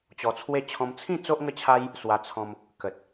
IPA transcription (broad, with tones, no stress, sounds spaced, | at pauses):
t͡ɕ ɔ˧ t͡sʰ w e˥˧ t͡ɕʰ ɔ̃˦ m t͡sʰ ĩ˥˧ t͡s o˦ ʔ ŋ ə˦ t͡ɕʰ a˦ j | s w a˧ t͡sʰ ɔ̃˧ m | k ə˨ t̚